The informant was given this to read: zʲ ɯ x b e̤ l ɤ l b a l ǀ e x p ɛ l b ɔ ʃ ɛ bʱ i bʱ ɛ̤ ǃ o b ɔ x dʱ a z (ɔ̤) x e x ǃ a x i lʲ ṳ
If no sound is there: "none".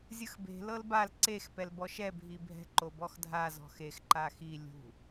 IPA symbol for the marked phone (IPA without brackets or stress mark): ɔ̤